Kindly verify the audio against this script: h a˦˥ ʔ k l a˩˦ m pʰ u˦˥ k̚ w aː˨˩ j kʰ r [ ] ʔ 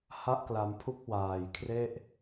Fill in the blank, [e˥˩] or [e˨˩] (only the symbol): e˥˩